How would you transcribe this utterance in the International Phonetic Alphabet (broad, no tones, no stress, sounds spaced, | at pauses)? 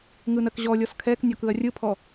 ŋ ɯ n ɜ k ʑ ɔ lʲ ɔ s kʰ ɛ k nʲ ɔ k ɯ ɐ̯ rʲ ɯ pʰ ɔ